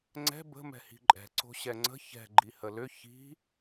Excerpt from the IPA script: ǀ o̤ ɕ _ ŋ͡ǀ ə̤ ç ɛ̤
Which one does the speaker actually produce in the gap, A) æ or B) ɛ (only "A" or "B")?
B